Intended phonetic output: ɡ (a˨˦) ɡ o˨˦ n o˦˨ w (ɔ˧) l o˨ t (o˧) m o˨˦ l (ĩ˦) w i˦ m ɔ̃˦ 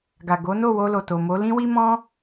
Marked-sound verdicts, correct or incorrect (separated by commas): incorrect, incorrect, incorrect, correct